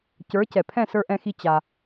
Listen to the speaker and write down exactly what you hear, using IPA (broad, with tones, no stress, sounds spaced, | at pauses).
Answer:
c ə˞˨˦ c ɛ˨ pʰ ɛ̃˦˨ s ə˞˧ ʔ ɛ̃˧ x i˧ t͡ɕ a˧